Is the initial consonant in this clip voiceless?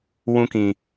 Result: no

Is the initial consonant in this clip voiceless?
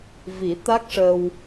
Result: no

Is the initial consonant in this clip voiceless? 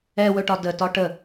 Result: no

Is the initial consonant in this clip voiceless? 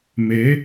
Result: no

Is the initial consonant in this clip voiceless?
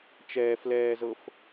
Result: yes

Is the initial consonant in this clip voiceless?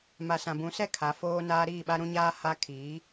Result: no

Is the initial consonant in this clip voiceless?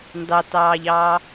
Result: no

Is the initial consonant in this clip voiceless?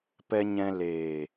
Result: yes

